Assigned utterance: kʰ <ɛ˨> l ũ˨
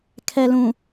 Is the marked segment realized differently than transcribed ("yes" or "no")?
no